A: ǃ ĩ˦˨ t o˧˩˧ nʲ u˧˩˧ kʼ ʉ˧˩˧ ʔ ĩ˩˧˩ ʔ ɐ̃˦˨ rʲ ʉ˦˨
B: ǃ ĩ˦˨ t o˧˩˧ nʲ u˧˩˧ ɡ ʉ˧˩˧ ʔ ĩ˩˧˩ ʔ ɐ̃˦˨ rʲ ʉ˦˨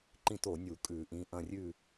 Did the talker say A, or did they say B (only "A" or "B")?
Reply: A